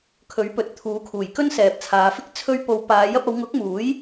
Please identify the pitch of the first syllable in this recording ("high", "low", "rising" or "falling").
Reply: rising